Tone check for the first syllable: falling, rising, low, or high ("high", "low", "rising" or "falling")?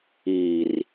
low